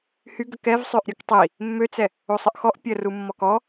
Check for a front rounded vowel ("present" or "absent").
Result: present